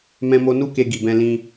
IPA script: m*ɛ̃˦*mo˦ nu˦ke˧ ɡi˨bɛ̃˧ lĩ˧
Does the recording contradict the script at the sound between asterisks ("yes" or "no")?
no